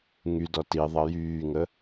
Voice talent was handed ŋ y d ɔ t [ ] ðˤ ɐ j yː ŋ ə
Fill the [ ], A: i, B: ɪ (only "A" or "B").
A